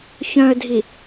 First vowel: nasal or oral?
nasal